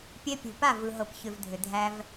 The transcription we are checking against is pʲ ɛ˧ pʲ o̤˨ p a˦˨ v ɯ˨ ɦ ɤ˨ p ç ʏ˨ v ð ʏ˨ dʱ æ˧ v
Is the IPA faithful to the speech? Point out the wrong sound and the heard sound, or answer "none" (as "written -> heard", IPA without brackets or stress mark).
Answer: ð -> dʱ